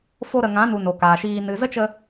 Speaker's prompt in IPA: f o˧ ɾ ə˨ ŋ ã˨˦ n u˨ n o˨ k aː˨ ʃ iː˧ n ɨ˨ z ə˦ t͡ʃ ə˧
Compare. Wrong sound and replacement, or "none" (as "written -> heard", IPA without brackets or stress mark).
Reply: none